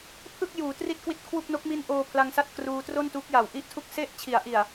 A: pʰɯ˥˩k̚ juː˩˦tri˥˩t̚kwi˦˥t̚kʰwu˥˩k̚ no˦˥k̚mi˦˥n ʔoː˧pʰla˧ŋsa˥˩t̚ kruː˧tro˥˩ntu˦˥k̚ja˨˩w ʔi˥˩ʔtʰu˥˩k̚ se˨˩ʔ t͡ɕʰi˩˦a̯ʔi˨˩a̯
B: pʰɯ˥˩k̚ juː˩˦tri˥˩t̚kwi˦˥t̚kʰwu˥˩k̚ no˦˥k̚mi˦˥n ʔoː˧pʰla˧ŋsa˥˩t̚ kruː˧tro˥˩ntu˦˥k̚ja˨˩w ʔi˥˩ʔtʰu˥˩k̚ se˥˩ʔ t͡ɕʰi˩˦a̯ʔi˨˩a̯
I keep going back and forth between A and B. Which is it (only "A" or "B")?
B